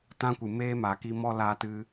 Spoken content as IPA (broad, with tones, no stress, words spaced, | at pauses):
tã˦kʷɨ˨meː˦ ma˨ki˧ mɔ˦laː˧tɨ˧